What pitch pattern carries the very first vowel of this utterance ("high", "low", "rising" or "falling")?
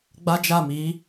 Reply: high